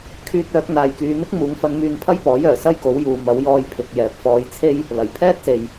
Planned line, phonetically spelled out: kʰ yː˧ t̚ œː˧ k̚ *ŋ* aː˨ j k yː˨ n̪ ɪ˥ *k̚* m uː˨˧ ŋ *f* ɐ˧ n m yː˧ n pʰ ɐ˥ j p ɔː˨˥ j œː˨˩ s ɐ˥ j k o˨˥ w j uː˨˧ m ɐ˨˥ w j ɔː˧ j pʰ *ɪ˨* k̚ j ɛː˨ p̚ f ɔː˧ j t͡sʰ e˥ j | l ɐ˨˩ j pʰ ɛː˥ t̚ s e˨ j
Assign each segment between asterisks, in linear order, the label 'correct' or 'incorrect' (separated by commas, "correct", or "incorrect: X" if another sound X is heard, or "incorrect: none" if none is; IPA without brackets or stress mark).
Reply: incorrect: n̪, correct, correct, correct